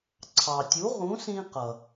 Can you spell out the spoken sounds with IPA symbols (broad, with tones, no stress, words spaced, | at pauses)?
ǀʰɑ˩tʲu˩˥ ʁũ˩˥sĩ˧qʌ˩